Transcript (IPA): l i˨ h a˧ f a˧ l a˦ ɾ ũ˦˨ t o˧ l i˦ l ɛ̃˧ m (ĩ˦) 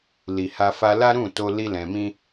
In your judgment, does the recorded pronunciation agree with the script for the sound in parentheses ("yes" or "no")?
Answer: yes